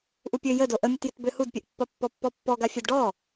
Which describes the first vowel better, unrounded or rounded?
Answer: rounded